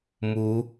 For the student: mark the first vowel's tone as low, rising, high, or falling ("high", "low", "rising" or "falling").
rising